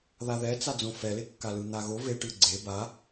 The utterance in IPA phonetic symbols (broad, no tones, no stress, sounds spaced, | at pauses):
ð a ð ɛ t͡s a d͡z õ f ɛ l e kː a l ɯ n̪ a ɣ o v e ʈ ɯ ɡ͡ǀ e b a